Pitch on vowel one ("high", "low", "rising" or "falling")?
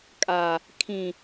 low